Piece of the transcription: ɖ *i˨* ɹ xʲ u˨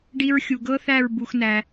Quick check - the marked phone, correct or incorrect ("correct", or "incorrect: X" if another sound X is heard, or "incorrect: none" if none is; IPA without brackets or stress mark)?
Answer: incorrect: i˧